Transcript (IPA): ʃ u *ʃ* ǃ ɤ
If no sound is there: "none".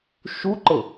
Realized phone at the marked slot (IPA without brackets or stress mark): none